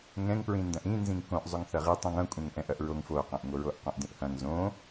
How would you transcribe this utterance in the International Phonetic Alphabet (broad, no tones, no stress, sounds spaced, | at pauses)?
ŋ ɛ̃ ŋ p ɹ ĩ n d ɐ̃ ʔ ĩ n z ĩ ŋ k õ ʔ zˤ o ŋ θ ɐ ʁ i tˤ ĩ ŋ ɐ̃ kʷʼ ɛ̃ ŋ ʔ ɛ̃ ʔ ɐ ʔ ɹ o ŋ f o q ɛ̃ ʔ ŋ o ɹ o ʔ q õ ʔ d ĩ ʔ h ɐ̃ ŋ z õ